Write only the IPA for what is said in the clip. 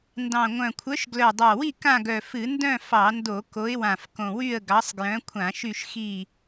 ndɑ̃˨˩ŋʷœ̃˨˩kʷʰœ˨˦ʃ ɡlœ˨˩dˤɑ˨˩wi˦˨ kã˦˨ɡœ˨˩fɨ˧˩˧ ndœ̃˦˨ fɑ˧˩˧ndo˧˩˧ ko˨˦ɪ̯wã˨˩f kõ˨˩wy˦˨ə̯ ɡɑ˨˦sˤɡjœ̃˨˦ kʷʰã˧˩˧ʃy˦˨ʃ xi˦˨

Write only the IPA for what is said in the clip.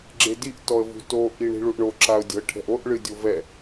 ɡ͡ǁediʔ tɔə̯vṳto ʔiɳi̤ɭuʔɳo ǁaʊ̯dʲɔ̤ə̯ʈʰɛ̤ʔoʔ ɭɨdʲovɛ

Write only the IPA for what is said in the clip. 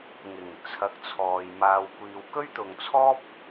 ŋɪ˨˩ŋ t͡sʰɐ˨˥k̚t͡sʰɔː˨j maː˨wkʷiː˨w kɵ˥ɥt̪ʊ˨ŋt͡sʰɔː˥p̚

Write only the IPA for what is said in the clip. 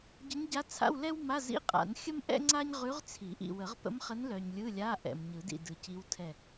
ɟə˧˥ɲɟa˧˥t͡sʰa̰˧˥˧w lɛ˥wma˧˥˧zḭ˧˥˧ qʼa̰˨˩˦nxʲə˥m ʔɛ̰˥ŋ͡ǀa˥ɲ ʁʉ˧˥ʁt͡sʰi˨˩˦ʔḭ˨ wə˨˩˦ʁpə̰˧˥m χə˧˥nlœ˨ɲ lʲɯ˧˥˧lʲa˧˥˧ʔɛ̰˨m ɲɯ˨˩˦dḭ˦˨ dɯ˨ci˧˥w tʰɛ˦˨

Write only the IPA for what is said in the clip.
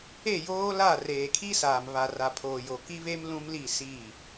e˦˨joː˦la˦˨ reː˨kʰi˦saː˨m βa˨ ra˨pʰoː˨jo˨ ki˦βe˦m lũ˦mli˦˨ siː˦˨

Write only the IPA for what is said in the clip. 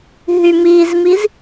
ɦymizmiz

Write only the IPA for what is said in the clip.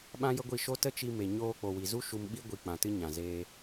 ɓã˦jə˦ɡʷi˦˨ ʃo˧ tə˦t͡ʃi˧ me˨ ɲoː˧k͡po˨wi˨zu˦ ʃu˧mɓi˦ ɡʷi˧k͡pã˨tɨ˦ ɲã˨zeː˦

